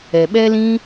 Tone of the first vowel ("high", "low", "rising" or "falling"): low